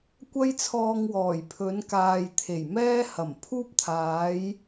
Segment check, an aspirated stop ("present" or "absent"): present